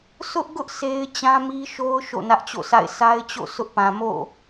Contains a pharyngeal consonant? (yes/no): no